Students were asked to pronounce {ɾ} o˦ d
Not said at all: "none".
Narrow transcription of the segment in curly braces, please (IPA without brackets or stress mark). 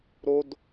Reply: ɾ